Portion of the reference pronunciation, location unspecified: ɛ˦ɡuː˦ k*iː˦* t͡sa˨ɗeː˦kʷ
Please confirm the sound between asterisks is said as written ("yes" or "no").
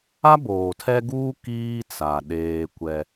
yes